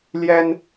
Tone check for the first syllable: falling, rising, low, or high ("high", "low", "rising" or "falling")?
high